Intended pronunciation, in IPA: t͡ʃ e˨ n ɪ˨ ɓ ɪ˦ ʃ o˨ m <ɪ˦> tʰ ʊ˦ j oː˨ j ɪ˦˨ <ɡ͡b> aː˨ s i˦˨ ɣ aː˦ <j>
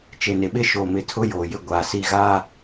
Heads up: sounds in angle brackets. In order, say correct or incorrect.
incorrect: ɪ˨, incorrect: ɡʷ, incorrect: none

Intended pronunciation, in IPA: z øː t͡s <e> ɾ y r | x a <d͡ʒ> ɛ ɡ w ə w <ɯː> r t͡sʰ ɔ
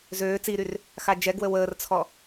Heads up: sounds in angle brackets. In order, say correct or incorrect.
incorrect: i, correct, incorrect: əː

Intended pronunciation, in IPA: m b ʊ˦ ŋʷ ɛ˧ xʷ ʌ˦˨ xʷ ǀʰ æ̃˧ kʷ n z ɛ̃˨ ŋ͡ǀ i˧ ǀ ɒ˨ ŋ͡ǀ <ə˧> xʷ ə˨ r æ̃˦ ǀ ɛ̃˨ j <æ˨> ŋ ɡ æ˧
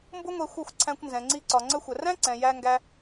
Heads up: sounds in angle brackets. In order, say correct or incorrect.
correct, incorrect: æ˧

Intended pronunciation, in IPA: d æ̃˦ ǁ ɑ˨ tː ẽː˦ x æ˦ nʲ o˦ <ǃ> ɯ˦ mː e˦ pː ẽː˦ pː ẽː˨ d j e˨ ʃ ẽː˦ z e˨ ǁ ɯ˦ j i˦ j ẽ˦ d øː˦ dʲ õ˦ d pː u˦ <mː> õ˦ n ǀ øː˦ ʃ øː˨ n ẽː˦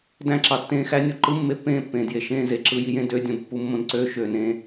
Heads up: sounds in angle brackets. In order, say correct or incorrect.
correct, correct

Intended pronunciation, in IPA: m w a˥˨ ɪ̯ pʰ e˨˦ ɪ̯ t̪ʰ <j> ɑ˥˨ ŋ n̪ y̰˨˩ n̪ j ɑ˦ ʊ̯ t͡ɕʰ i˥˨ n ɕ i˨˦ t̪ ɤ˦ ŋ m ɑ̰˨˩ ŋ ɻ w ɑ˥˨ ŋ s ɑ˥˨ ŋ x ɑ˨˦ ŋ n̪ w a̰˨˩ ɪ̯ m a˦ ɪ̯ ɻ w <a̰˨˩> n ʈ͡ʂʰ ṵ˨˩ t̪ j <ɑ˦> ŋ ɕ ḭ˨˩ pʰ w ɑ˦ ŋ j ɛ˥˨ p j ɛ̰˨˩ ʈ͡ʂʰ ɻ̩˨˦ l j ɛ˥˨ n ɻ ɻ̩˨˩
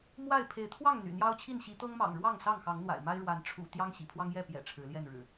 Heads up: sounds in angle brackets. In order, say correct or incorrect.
incorrect: w, incorrect: a˨˦, correct

